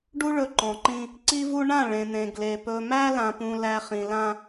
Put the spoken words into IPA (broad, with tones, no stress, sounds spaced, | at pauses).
ɖ u˦ ɭ ɵ˨ ǃ ɔ̃˨ ǃ ĩ˦ | ǀ i˦ v u˦ ɳ ã˦˨ ɭ ẽ˨ n̪ ẽ˨ ɡ l e˨ p ɵ˨ m æ˦ l ã˨ p ũ˨ l æ˨ χ ĩ˨ l ã˦